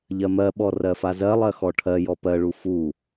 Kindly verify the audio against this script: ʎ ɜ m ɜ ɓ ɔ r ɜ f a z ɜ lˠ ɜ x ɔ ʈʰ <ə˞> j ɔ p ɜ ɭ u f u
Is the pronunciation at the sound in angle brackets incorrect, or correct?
incorrect